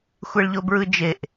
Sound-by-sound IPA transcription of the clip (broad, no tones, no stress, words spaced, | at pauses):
xʷeɭʎobɹɯd͡ʒeʔ